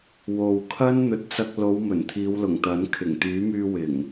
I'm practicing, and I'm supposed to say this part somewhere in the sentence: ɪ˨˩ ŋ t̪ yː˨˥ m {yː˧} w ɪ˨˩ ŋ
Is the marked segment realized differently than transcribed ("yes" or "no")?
no